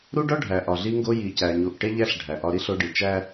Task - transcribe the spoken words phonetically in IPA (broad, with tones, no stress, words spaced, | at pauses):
ɾu˦ɖɒ˦ ɖʱæ˨ʔɒ˨ɮi˦ŋɡo˦ ji˨cæ˨ɲu˨ʔ ʈe˦ʎæ˦ɬ ɖʱæ˨ʔɒ˦ɾi˦ɬ o˦ɖi˨ t͡ʃæ˦